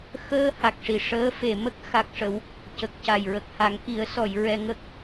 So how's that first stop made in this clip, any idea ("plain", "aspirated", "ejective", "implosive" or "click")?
plain